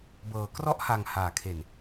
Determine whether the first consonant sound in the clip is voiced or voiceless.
voiced